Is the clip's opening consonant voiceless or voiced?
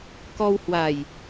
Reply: voiceless